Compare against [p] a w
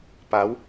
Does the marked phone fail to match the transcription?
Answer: no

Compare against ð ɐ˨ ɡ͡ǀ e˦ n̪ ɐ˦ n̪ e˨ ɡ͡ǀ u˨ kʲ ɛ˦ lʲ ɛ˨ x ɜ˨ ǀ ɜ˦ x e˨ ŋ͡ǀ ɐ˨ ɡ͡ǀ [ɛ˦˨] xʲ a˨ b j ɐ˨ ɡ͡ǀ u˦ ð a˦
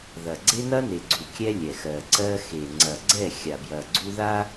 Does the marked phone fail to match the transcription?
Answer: no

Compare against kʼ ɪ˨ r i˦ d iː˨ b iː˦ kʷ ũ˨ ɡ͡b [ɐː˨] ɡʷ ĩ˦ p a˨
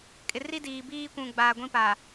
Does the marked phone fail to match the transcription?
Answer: yes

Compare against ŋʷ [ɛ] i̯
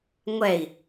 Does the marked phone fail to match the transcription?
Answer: no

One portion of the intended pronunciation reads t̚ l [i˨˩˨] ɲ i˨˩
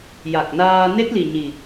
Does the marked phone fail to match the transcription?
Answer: yes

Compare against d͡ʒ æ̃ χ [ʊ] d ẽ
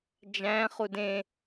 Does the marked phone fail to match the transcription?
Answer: yes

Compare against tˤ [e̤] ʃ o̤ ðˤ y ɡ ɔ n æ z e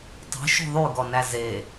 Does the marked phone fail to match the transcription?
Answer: no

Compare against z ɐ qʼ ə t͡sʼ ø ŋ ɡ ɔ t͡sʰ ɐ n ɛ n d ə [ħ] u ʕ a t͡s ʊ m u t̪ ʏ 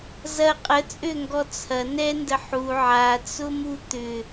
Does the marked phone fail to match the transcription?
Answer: no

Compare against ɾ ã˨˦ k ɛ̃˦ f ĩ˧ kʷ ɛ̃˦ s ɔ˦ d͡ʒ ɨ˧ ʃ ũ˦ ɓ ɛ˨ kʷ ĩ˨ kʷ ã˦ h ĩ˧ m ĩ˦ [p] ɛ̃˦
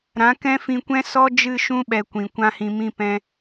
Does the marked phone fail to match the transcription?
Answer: no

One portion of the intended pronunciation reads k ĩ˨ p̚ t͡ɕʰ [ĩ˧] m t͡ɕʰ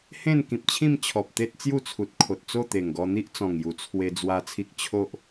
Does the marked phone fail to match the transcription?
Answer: yes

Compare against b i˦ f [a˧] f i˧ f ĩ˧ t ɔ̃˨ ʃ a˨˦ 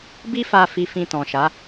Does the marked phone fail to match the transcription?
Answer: no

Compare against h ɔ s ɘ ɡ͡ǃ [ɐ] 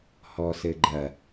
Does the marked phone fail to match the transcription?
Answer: no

